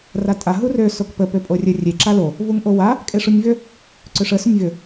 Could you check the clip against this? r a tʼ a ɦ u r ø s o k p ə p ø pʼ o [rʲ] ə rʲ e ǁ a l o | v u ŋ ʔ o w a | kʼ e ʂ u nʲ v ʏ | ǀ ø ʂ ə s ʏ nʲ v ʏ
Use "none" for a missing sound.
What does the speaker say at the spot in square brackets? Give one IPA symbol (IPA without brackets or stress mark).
rʲ